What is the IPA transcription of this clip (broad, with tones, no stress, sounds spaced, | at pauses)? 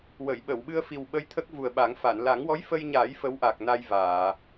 w ə˨˩˨ j ɓ ə˨˩˨ w ɓ ɨ˧ ə̯ f i˨˩ w ɓ ə˧ j t̪ʰ ə˦˥ k̚ v u˨˩ ə̯ ɓ a˨˩˦ ŋ f a˨˩˨ n l a˨˩˦ ŋ w ɔ˧˥ j f ə˧ j ɲ aː˨˩˦ j f ə˧˥ w ʔ a˨˩ k̚ n a˧ j v aː˨˩˨